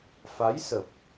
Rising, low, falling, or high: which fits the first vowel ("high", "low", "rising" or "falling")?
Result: rising